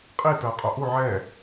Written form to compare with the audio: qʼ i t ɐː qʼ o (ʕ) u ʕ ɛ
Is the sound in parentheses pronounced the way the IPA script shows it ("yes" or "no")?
no